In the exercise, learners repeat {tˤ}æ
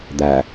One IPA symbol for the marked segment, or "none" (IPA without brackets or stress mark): d̪